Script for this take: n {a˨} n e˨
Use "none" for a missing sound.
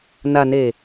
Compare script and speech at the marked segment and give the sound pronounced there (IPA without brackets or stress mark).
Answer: a˨